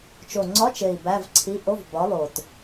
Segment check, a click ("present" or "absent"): present